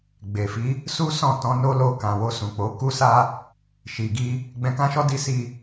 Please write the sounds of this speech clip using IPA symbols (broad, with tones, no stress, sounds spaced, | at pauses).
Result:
ɡ͡b e˨ f i˨˦ | s u˦ s ɔ̃˦˨ t ɔ̃˧ n o˦ l o˧ k ã˨ w o˧ s ũ˨ k͡p o˨˦ k u˦ s a˦ | ʃ i˨ ɡ i˧ | ɡ͡b ɛ̃˧ k ã˦ ʃ ɔ˦ d i˧ s i˧